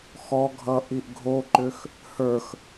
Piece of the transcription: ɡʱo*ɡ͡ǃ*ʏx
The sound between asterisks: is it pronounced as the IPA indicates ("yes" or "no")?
no